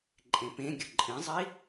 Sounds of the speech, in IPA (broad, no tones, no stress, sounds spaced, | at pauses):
ǃʼ ẽ p ẽ ɡʲ ʊ ǃʼ ĩ zˤ i